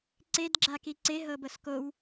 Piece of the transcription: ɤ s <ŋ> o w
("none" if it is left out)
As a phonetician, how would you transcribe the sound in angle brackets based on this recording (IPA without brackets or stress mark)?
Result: k